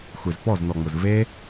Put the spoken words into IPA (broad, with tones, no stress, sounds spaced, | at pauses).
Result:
xʷ e˨ z p ɔ˦˨ z n ɔ˨ ŋ͡m ʊ˨ z v e˦